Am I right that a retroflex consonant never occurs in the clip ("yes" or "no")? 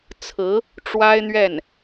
no